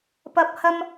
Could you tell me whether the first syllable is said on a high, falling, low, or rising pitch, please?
low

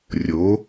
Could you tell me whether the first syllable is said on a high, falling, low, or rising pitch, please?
rising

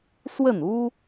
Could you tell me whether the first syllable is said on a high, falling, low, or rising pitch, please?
falling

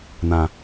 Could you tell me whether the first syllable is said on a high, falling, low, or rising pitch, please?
low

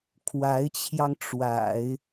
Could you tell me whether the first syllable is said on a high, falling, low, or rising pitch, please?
rising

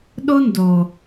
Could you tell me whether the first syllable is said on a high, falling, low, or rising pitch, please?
high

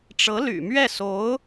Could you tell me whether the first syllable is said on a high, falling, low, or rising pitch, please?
rising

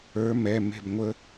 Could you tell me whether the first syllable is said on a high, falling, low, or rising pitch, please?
rising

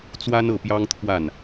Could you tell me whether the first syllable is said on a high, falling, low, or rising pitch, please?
high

